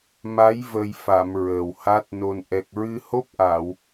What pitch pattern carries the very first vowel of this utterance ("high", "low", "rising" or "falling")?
rising